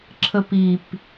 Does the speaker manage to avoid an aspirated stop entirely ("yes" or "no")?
no